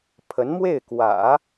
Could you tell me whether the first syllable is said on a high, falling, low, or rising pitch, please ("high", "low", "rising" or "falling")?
rising